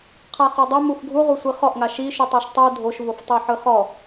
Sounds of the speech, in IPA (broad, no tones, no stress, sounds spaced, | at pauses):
qʰ a χ o dˤ ɛ m u f ɡʱ u ʁʷ i sʷ i χ ɔ ʔ ŋ a ʃ i ʃ u tˤ ɤ ʃ tˤ u dʱ o ʃ v o f tˤ e ħ ɯ χ ɔ